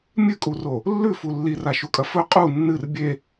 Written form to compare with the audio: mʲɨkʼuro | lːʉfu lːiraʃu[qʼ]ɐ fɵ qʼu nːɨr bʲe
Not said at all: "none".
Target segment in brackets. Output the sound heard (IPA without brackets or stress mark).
kʼ